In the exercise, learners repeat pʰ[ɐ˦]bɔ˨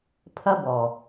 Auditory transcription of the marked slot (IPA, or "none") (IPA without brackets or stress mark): ɐ˦